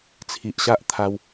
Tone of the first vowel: low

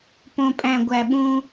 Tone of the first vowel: low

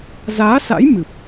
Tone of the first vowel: rising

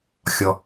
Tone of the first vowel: low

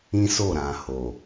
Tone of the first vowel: high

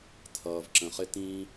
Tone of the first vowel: low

